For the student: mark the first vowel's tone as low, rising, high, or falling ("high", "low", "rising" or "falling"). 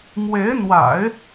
rising